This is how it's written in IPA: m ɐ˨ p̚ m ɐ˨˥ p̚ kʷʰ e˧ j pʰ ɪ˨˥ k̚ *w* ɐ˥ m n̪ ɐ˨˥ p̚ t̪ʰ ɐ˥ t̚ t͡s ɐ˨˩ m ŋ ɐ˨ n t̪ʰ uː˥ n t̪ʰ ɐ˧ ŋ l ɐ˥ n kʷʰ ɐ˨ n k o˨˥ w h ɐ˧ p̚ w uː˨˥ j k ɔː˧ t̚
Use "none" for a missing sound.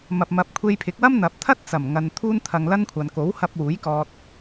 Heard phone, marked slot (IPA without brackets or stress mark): w